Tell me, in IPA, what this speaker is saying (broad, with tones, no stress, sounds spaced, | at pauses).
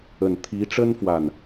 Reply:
ə˨˩ n t̪ʰ i˧˥ ʈ͡ʂ ə˥ n f w a˥˩ n